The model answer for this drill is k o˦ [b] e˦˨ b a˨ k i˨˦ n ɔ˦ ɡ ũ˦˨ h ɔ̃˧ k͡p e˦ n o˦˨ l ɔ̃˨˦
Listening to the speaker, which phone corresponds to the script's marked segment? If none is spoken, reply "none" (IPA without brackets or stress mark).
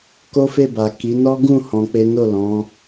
f